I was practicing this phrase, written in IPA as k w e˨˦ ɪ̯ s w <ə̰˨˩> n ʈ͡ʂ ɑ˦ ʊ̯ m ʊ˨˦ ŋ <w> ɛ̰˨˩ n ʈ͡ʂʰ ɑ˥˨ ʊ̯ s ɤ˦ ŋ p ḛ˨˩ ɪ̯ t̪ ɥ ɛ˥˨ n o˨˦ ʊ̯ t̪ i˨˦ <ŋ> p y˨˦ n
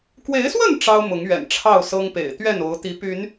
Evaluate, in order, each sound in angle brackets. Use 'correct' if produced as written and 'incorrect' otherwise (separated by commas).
incorrect, incorrect, incorrect